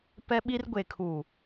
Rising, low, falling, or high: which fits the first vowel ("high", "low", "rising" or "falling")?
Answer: high